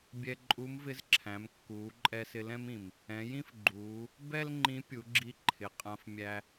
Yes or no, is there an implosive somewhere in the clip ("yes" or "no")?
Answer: no